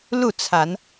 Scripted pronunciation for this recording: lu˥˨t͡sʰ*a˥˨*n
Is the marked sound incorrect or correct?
incorrect